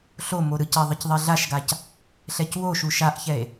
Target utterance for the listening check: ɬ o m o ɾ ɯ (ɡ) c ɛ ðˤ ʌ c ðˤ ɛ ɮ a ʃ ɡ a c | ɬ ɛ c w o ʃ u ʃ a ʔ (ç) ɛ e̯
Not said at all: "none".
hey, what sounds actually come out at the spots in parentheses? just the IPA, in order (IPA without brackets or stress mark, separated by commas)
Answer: none, ç